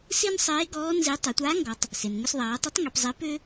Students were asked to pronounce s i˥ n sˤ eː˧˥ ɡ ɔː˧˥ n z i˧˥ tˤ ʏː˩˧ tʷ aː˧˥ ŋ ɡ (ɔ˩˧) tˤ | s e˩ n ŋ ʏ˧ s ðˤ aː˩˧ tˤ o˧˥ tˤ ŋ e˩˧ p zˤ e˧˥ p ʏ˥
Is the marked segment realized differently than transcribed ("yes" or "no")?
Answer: no